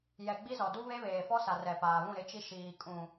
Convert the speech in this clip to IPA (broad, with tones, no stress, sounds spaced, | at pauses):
j ɛ˨ ɡ͡b i˦ z ɔ˨ d u˦ β e˦ β eː˨ f ɔ˦ s a˨ r ɛ˨ p aː˨ β ũ˦˨ ɾ ɪ˦ t͡ʃ i˦ ʃ iː˨ kʼ ũ˨